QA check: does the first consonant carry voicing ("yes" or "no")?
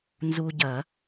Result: yes